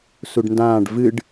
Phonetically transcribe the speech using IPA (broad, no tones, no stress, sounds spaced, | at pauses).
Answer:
s u ɖ n d ãː ɖ v ɨ ɖ